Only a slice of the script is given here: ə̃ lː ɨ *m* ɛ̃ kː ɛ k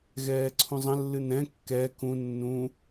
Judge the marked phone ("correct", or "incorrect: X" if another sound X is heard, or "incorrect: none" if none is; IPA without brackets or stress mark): incorrect: n